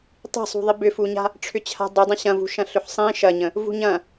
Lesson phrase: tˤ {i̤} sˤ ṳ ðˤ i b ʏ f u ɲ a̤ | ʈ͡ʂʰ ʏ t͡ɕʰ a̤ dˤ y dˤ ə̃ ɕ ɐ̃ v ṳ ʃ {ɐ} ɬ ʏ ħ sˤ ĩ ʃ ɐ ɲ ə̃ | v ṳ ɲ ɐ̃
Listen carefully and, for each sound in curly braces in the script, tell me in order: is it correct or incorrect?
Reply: correct, incorrect

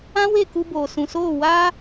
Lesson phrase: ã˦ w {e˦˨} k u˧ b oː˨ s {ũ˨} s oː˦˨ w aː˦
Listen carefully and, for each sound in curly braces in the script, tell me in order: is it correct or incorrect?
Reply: correct, correct

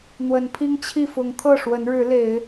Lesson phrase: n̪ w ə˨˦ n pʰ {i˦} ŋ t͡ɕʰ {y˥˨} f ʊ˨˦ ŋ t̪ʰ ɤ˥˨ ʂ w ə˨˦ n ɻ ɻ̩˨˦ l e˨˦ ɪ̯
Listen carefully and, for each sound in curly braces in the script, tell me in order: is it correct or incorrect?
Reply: correct, incorrect

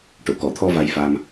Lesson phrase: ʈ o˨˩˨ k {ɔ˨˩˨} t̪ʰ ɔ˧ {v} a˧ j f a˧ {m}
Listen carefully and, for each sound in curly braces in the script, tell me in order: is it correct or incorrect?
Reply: correct, correct, correct

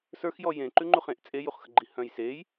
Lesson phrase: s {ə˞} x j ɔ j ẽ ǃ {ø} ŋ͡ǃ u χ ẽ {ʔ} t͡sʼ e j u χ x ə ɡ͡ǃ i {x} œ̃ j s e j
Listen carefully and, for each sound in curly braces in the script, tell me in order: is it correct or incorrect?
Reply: correct, incorrect, correct, incorrect

